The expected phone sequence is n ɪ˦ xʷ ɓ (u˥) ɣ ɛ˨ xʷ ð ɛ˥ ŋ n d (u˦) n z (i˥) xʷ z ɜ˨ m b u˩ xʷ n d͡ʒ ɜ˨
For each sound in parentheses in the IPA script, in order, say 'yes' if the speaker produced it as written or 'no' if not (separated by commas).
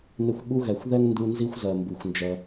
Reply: yes, yes, yes